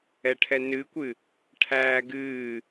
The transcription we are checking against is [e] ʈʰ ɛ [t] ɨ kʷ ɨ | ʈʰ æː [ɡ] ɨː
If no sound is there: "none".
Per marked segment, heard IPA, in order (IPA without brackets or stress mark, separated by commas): ɛ, n, ɡ